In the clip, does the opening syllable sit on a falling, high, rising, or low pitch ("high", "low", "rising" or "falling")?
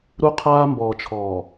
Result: high